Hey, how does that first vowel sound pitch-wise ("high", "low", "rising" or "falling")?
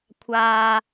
low